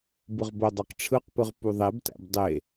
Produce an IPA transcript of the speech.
b ɯ ʁ b o dˤ æ q ʈ͡ʂʰ ɯ q p ɯ ʁ p u ðˤ e b t æ̰ b dˤ e

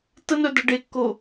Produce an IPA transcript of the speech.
t ə n œ d ɐ ɖ e kː o

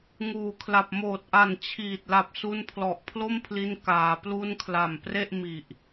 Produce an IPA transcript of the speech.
ŋ uː˨˩ kʰ l a˨˩ p̚ m oː˨˩ t̚ ʔ a˨˩ n t͡ɕʰ iː˨˩ t̚ l a˨˩ p̚ s u˧ n pʰ l ɔ˨˩ ʔ pʰ l o˥˩ m pʰ l i˧ n k aː˩˦ p l u˥˩ n kʰ l a˨˩ m p r e˥˩ ʔ m i˨˩ ʔ

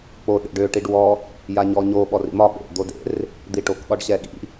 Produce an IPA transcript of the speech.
k͡p o ɗ ḛ ɖ ø ʈ i ɖ w ɔ | j a ɲ ɔ ɲ o ɓ ɔ r ḭ m ɒ ɓ ḛ d̪ o d ḛ r | d̪ i ʈ o k ɠ ɒ ɖ ɕ ɛ ɠ ḭ

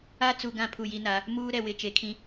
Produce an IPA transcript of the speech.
a˦ t͡s u˨ ɡ ã˦˨ pʰ u˦˨ j i˦ n a˨˦ | m uː˦ ɾ ɛ˨ w ɪ˨ t͡ʃ e˨ kʰ ĩ˦

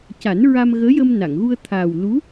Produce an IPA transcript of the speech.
c a˨˩˦ n ɹ a˧ m ɣ əː˧˥ j ə˧ m n a˨˩˨ ŋ ɣ u˧ ə̯ t̪ʰ aː˨˩ w l u˧˥

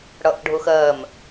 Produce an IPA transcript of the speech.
ɽ ʌ ʔ ɖʱ ʊ x ɜ m

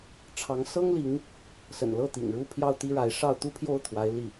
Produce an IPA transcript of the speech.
ʈ͡ʂʰ ɑ˧˥ ŋ s ɤ˥ ŋ l i˧˥ ŋ | s ə̰˨˩ n l ɤ˥˩ t̪ ḭ˨˩ ŋ ɻ u˥˧ pʰ j ɑ˥˩ ʊ̯ t̪ i˥ ɻ a˧˥ ɪ̯ ʂ ɑ˥˧ ʊ̯ t̪ u˥˧ pʰ j o˥˩ ʊ̯ t̪ʰ w a˧˥ ɪ̯ l i˥˩

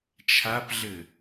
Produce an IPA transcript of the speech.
t͡ʃʰ a p ɮ ɘ

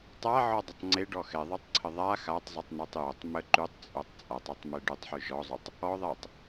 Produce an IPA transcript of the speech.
tˤ a ʕ ɔ dˤ ə tˤ ŋ͡ǀ e ɖ ɔ x ɛ ðˤ ʉ tˤ ǀʰ ə ðˤ a x a tˤ zˤ ʉ tˤ n ɛ tˤ j o tˤ m ə ǃ ʉ tˤ t͡sʼ o tˤ t͡sʼ a tˤ o tˤ m e ɖ ʉ tˤ ħ ʉ ʒ ɔ zˤ ʉ tˤ | ɔ ðˤ ɛ tˤ

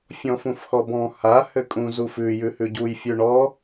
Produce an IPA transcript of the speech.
fʲ ɔ̃ f ũ f x ɔ b ɔ̃ h a h ɘ kʼ ũ z u f ʉ j ʉ h ʉ ɟ u j fʲ ʉ ɳ ɔ

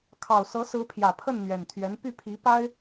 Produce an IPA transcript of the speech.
kʰ ɑ˨˩ ʊ̯ s ɤ˧˥ s ɹ̩˧˥ pʰ j ä˨˩ pʰ ə˥˩ n n̪ ɥ ɛ˨˩ n t̪ʰ ɥ ɛ˧˥ n p y˥˩ pʰ i˧˥ p a˥ ɪ̯

